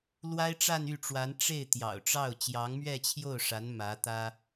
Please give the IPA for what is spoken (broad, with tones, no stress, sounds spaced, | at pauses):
l w a˥ ɪ̯ ʈ͡ʂ a˥˧ n y˥˩ ʈ͡ʂ w a˧˥ n ʈ͡ʂ e˥˩ ɪ̯ t̪ j ɑ̰˨˩ ʊ̯ ʈ͡ʂ ɑ˥˩ ʊ̯ t͡ɕ j ɑ˧˥ ŋ m ɥ ɛ˥˧ t͡ɕʰ j o˥˩ ʊ̯ ʂ a˧˥ n m ä˧˥ t̪ ä˥